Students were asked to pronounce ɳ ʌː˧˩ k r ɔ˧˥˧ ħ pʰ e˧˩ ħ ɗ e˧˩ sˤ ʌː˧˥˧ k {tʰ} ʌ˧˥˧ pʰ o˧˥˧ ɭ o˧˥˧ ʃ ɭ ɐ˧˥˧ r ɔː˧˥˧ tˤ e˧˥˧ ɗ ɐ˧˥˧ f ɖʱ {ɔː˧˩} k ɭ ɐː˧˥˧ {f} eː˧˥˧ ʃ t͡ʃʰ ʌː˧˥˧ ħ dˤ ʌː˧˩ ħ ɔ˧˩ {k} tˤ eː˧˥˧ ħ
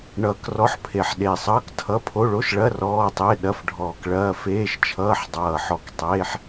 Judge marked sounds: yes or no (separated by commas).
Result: yes, yes, yes, yes